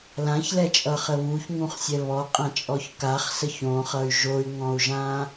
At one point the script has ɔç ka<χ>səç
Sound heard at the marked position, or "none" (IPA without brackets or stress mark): χ